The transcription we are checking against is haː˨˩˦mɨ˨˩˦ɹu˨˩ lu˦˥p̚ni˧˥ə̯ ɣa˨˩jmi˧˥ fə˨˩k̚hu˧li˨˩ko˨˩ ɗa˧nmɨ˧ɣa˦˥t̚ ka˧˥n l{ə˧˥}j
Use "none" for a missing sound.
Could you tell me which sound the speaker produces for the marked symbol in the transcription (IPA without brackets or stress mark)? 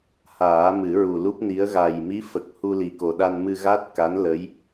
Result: ə˧˥